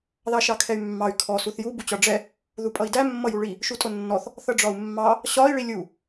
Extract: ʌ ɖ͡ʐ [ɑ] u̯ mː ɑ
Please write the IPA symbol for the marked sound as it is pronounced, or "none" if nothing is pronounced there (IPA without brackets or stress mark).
ɒ